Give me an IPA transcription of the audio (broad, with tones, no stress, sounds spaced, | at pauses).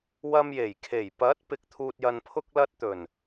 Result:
w ɐ˧ m j e˨˩ j kʰ e˨˩ j p ɐ˨˥ t̚ p ɪ˨ k̚ t̪ʰ uː˨ t̚ j ɐ˨ n pʰ ʊ˧ k̚ l ɐ˧ t̚ t̪ ɵ˨˩ n